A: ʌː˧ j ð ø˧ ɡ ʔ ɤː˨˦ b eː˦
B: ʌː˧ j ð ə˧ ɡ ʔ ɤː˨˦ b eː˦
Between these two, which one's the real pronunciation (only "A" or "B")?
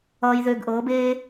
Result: A